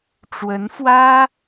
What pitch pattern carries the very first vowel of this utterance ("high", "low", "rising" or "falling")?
rising